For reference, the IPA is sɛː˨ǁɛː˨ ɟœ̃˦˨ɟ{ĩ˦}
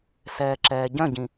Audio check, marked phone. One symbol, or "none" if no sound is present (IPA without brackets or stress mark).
ĩ˨